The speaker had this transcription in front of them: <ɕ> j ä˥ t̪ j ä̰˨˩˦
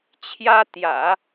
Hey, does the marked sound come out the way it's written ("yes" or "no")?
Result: no